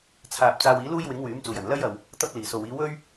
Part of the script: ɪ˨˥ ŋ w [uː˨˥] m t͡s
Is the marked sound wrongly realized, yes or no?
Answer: yes